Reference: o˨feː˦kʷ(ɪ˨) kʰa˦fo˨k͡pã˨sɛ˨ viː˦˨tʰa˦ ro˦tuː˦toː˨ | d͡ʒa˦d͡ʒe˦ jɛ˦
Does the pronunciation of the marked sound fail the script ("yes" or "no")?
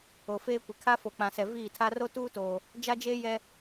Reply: no